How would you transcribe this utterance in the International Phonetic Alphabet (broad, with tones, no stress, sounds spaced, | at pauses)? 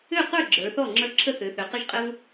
ø˥˩ q ə˞˥˩ ɡ͡ǁ ə˞˩˧ θ ɔ˥˩ ŋ͡ǁ ə˞˦ ǁʰ ə˦ θ ø˩˧ θ ø˩˧ q ɘ˦ ʒ qʼ ɘ˦ v